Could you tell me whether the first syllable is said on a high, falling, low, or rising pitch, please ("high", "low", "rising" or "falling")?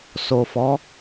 low